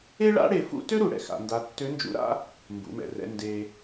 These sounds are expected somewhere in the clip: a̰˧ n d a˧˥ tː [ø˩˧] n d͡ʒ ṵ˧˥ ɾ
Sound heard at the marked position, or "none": ø˧˥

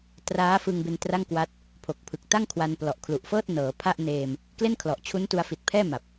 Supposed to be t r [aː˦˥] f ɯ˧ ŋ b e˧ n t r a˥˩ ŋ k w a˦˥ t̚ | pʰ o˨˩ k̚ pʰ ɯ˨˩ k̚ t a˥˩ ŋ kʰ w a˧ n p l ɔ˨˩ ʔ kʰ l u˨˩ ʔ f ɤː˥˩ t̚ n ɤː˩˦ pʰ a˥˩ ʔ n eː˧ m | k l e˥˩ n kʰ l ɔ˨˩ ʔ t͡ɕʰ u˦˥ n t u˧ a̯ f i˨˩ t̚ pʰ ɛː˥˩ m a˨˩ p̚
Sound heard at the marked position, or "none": aː˦˥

